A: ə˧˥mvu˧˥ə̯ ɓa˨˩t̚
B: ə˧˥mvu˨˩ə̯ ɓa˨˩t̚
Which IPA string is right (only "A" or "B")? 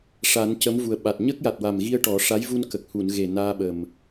B